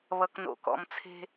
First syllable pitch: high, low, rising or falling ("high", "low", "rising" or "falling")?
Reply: low